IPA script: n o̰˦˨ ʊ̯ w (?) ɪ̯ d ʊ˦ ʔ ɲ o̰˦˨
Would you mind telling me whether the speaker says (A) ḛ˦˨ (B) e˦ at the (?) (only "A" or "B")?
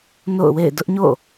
A